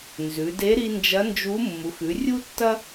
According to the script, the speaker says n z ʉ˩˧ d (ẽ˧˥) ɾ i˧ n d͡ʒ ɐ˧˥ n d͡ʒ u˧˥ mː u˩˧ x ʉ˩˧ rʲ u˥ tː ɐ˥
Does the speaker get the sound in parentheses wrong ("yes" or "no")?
yes